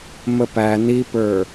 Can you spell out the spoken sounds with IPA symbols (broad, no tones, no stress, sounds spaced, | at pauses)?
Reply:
m ə p æ n i p ə˞